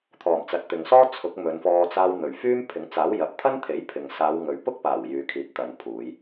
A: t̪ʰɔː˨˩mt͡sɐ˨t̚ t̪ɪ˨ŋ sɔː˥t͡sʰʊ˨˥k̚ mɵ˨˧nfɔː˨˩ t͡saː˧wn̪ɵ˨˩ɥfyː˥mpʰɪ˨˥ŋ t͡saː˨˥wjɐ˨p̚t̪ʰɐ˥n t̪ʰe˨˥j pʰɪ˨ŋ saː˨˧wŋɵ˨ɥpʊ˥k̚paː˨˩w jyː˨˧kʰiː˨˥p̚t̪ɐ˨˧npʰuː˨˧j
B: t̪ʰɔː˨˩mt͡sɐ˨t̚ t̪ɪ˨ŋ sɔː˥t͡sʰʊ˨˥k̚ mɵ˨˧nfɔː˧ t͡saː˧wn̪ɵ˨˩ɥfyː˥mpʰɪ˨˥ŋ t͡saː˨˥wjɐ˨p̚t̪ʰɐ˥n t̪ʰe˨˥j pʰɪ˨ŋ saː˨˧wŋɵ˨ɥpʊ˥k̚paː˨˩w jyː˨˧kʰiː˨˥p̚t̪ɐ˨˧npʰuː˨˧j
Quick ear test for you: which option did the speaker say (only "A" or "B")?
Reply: B